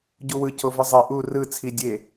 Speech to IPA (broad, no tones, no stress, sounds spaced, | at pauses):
ɟ u w ɯ cʰ o v ɯ zˤ e ʔ u r ɯ t͡sʰ i dʲ e